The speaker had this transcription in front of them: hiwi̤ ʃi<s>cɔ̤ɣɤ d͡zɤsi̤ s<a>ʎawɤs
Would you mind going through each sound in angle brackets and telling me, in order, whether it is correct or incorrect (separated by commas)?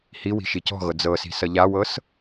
incorrect, incorrect